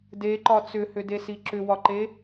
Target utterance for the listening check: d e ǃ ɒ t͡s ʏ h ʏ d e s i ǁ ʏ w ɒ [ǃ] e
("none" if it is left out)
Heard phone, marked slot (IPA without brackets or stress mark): ǃ